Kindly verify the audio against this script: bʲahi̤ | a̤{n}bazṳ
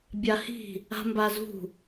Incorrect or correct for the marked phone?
incorrect: m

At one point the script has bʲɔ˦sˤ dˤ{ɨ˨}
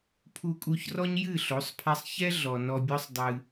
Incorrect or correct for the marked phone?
incorrect: ɨ˧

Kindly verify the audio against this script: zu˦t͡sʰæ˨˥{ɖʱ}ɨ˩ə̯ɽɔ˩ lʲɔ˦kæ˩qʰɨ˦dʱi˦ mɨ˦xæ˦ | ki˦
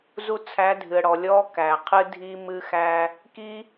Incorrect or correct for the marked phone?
incorrect: dʱ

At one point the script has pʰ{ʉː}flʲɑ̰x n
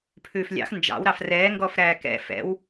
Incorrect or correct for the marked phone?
correct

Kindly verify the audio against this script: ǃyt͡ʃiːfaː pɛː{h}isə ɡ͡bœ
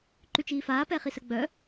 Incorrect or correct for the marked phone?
incorrect: χ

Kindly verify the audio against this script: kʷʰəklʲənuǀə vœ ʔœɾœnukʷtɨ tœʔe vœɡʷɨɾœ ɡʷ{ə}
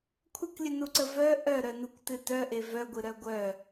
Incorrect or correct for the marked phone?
incorrect: œ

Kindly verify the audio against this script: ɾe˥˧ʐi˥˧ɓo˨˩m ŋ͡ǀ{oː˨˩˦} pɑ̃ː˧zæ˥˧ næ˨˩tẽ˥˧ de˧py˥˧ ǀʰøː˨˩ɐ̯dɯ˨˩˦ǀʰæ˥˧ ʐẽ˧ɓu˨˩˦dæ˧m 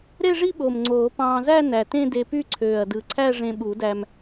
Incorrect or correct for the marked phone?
correct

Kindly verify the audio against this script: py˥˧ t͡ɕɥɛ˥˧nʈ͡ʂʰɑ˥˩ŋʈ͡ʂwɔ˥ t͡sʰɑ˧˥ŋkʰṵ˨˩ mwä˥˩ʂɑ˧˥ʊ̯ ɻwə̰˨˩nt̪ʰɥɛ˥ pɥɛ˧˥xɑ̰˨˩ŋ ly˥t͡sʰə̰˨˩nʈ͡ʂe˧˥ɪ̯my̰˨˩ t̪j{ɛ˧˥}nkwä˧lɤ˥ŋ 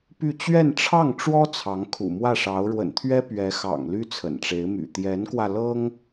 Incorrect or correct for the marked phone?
correct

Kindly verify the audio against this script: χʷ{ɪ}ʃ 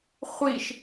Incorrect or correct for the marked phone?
incorrect: i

